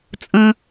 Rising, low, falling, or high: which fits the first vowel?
high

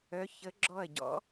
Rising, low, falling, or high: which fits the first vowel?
rising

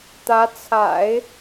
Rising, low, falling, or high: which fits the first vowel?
rising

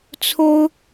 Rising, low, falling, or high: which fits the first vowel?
high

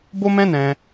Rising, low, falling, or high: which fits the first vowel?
high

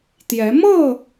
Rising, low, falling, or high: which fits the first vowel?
rising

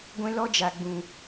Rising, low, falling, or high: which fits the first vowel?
high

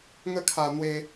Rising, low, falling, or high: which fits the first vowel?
falling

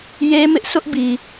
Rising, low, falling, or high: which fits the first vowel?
high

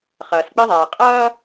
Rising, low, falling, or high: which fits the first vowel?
low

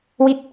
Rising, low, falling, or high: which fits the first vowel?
falling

